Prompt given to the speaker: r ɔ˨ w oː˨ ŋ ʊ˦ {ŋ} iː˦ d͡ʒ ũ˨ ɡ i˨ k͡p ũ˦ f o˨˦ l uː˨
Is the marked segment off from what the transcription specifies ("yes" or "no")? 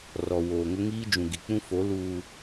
no